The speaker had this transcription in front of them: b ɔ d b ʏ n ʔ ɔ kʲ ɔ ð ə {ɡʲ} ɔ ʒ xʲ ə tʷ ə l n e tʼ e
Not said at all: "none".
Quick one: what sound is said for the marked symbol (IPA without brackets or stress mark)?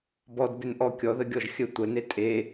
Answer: ɡʲ